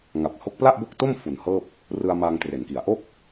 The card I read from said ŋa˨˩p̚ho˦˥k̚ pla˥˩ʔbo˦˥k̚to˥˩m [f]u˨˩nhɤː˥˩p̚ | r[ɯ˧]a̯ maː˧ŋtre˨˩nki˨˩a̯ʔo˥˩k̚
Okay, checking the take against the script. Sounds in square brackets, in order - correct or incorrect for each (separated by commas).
correct, correct